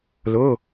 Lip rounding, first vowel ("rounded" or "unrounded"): rounded